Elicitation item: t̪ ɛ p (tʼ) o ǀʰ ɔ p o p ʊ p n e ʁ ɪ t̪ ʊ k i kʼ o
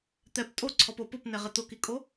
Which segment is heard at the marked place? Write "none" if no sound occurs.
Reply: tʼ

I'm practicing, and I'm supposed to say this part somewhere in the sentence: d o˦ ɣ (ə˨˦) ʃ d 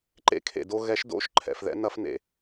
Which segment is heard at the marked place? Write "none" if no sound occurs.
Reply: ɛ˨˦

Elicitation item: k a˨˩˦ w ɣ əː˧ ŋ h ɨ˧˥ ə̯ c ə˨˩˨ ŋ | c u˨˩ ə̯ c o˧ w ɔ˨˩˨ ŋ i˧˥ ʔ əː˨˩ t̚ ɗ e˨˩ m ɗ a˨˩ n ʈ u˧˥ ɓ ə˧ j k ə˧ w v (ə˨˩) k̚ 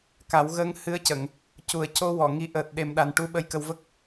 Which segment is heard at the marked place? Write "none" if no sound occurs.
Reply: ə˦˥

